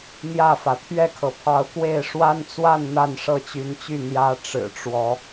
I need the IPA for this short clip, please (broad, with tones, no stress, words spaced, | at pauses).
n̪jä˥˨fä˩ t̪ʰɥɛ˥˨kʰɤ˩pʰɑ˨˦ʊ̯kwe˥˨ɪ̯ ʂwa˦nt͡swa˥˨n n̪a˥˨nʂɤ˥˨t͡ɕy˨˦nt͡ɕy˥˨ n̪jä˦ ʈ͡ʂɻ̩˨˩ʈ͡ʂwɔ˨˦